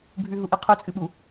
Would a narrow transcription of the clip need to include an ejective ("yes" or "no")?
yes